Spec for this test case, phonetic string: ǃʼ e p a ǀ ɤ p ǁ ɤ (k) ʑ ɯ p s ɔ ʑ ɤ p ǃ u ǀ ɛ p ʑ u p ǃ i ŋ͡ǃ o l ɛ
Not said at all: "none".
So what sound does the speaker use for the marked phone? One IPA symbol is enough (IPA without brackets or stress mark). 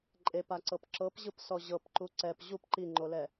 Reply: p